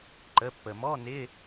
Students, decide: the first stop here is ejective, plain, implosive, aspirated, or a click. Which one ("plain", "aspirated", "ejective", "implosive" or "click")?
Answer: click